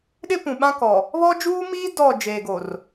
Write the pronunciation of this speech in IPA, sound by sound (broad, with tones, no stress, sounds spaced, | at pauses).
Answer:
ɗ ɪ˦ p ũ˨ ɓ ã˦ k ɔ˨ | β ɔ˦ d͡ʒ uː˦ m iː˦ d ɔ˦˨ d͡ʒ eː˨ ɡ o˨ r